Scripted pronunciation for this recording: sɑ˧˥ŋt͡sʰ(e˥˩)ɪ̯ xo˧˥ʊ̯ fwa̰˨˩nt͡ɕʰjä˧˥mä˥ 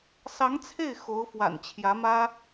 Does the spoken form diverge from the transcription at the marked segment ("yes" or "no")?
no